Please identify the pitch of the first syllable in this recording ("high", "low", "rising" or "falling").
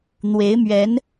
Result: rising